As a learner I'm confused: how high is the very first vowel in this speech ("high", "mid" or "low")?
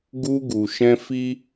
high